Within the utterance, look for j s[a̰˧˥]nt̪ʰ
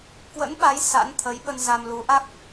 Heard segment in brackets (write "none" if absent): a̰˧˥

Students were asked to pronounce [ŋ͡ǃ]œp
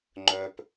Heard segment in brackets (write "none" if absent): ŋ͡ǃ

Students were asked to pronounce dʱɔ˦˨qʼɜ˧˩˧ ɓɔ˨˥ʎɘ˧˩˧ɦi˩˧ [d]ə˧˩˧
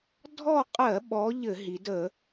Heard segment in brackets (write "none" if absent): d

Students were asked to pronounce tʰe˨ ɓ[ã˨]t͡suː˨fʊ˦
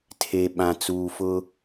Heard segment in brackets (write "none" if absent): ã˨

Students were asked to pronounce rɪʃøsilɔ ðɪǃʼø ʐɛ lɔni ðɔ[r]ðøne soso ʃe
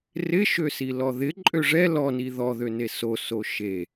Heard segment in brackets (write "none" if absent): none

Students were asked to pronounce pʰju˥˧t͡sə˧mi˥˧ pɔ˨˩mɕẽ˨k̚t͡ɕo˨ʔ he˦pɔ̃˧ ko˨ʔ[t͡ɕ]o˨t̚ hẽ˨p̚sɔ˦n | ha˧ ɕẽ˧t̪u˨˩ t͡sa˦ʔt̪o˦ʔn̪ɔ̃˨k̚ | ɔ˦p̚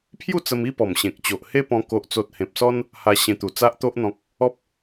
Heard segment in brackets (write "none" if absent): t͡s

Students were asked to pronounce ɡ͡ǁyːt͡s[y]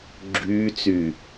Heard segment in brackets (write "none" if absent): y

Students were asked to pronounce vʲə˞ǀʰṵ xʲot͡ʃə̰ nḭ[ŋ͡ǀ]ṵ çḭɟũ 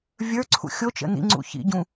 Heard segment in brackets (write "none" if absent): ŋ͡ǀ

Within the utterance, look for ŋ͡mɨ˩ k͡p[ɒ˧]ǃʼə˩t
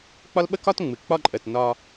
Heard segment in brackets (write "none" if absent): ɒ˧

